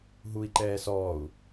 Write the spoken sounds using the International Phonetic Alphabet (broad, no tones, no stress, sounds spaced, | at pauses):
ɦ u i̯ ǃ ɛː s ɔː u̯